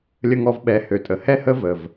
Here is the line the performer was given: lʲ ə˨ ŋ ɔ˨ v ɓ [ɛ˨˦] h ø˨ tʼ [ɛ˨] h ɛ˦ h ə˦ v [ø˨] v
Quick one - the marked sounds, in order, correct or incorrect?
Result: correct, incorrect: ə˨, incorrect: ə˨

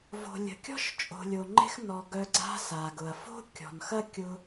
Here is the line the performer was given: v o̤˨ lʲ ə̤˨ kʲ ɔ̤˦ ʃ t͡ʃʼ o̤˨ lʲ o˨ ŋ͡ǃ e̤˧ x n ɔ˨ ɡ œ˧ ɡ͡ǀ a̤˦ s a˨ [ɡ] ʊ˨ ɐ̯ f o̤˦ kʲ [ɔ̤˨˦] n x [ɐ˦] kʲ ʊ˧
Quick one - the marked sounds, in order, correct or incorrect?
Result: correct, incorrect: ɔ̤˨, correct

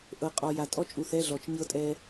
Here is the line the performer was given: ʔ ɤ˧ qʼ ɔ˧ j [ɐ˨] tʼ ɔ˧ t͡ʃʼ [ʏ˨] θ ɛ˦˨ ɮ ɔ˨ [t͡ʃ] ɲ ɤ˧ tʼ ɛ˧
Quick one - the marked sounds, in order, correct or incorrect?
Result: incorrect: a˨, incorrect: u˨, correct

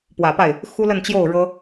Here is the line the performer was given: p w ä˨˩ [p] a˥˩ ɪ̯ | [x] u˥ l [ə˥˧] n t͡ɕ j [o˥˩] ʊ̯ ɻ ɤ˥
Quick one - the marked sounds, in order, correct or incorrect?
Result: correct, correct, correct, correct

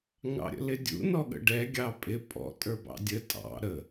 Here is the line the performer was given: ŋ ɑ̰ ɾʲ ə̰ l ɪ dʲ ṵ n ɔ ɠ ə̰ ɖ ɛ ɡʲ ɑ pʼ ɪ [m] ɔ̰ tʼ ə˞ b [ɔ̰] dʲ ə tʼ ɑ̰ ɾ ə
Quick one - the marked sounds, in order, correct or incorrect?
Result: incorrect: pʼ, incorrect: ɑ̰

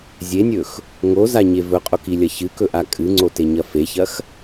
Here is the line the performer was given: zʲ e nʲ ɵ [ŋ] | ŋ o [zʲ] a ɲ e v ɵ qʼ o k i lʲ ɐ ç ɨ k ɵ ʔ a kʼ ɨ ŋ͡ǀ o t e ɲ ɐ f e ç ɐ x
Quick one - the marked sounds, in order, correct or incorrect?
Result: incorrect: x, incorrect: z

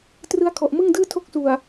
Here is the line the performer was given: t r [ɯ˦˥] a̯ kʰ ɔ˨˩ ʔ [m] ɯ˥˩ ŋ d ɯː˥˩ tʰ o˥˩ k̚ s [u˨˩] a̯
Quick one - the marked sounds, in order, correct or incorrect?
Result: correct, correct, correct

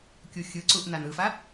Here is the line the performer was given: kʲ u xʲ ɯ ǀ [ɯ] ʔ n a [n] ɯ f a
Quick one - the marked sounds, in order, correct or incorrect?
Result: incorrect: u, correct

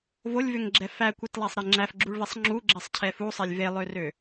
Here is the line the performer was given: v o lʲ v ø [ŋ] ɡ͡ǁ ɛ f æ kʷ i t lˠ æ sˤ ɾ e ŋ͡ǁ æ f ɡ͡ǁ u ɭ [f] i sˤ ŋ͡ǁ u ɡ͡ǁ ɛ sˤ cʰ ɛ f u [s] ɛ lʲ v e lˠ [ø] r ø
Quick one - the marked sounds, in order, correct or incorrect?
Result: correct, incorrect: v, incorrect: sˤ, correct

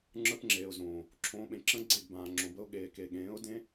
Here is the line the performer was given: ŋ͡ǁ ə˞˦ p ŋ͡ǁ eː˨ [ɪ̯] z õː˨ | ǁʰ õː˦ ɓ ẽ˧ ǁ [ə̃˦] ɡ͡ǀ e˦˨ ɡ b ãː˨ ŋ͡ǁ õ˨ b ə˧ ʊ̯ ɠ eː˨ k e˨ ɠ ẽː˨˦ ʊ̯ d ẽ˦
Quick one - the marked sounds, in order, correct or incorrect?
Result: incorrect: ʊ̯, correct

